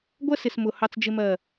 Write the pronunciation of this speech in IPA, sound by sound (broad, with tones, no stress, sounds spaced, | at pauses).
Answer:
ɡʷ ɜ˦ s ɪ˨ s m ʊ˨ h ɑ˦ t͡s d͡ʒ ɪ˦ m ɜ˦˨